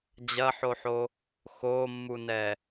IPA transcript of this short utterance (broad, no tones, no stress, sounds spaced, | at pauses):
d͡ʑ ɐ ħ o ħ o | x o mː u n ɛ